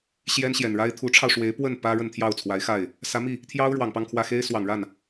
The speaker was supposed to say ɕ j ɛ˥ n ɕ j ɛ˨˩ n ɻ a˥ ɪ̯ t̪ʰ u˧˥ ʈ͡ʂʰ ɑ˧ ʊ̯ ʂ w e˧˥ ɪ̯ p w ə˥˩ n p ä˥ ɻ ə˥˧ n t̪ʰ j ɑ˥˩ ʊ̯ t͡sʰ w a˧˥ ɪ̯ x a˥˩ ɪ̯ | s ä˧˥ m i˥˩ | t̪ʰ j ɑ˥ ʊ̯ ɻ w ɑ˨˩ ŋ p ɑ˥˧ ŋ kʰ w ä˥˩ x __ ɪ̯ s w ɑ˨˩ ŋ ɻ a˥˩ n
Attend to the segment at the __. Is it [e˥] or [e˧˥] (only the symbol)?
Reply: e˥